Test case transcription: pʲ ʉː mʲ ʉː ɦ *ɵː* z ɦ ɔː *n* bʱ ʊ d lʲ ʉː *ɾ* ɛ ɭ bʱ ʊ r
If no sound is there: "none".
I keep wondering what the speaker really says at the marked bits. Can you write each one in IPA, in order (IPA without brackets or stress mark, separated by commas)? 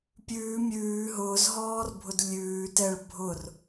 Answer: ʊː, r, t